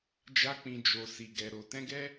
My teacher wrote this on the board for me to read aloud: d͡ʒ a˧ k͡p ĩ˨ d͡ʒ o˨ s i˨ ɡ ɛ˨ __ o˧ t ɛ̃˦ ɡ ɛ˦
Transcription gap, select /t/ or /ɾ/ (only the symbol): ɾ